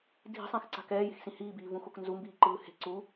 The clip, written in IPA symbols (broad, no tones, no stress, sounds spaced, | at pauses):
dʱ i̤ sˤ ɛ̃ x ǀ a̤ k ɛː j e̤ x s ĩ h iː b iː v ũ x o k n z u m b iː ǃ ɯː h e̤ ǀ u